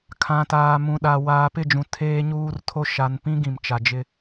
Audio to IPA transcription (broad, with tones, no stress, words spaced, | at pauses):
kʰã˨taː˨ mũ˨ɗa˨ waː˨pɪ˦˨d͡ʒũ˨ tʰeː˦ɲuː˦rtʰo˦ ʃa˨npĩ˦ ɡĩ˨mt͡ʃa˨d͡ʒɪ˦